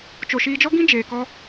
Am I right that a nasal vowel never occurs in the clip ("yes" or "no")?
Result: no